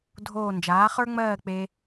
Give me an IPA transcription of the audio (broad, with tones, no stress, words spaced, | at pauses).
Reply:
dʱoː˥˧ nd͡ʒaː˨˥χə˞˥ŋ͡mɜː˥˧ k͡pe˥